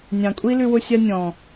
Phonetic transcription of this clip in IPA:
nʲ ɑ̃˨ kʷʼ i˦ l ʉ˧ w ʊ˧ sʲ a˧ nʲ ɔ̃˨

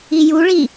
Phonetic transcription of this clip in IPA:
i j u ɭ i

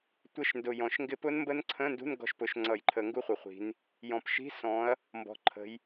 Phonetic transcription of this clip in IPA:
tʷ ə˧˥˧ ʃ n d ʊ˨˩ j ɔ̃˨˩ ʃ ŋ ɡ ɪ˦˥ p ʊ˦˥ n m b ə˦˥ n ǀʰ ə̃˧˥˧ n d ṳ˧˥˧ n ɡ ɔ̤˦˨ ʃ p ʊ˧˩˧ ʃ ŋ͡ǀ ʌ˧˩˧ j ǃʰ ə˧˩˧ ŋ ɡ u˦˥ χʷ ʌ˨˩ χʷ i̤˨˦ n | j ɔ̃˨˩ p ʃ i̤˧˥˧ s ɔ̃˨˦ ɐ̯ | m b ɔ̤˨˩ ǃʰ ə̤˨˦ j

